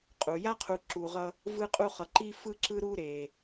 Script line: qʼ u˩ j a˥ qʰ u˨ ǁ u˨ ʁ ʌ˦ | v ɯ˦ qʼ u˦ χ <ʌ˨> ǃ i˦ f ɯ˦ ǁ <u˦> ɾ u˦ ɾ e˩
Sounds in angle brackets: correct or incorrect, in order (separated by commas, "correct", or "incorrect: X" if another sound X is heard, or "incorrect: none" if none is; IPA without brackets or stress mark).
correct, incorrect: ɯ˦